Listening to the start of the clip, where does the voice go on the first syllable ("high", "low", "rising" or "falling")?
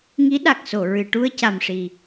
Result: rising